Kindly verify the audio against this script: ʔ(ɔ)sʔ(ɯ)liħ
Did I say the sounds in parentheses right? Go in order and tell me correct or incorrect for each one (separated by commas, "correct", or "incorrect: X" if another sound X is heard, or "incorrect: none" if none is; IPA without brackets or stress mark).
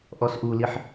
correct, incorrect: u